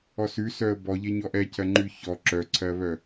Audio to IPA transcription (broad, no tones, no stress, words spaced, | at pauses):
ɔsʉsœə̯ bɔʎeɲɔ ʔɛcʰɜŋ͡ǃʉ çɔ ǁœǀʰɜβœ